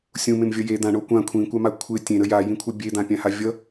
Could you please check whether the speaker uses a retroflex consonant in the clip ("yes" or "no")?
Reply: yes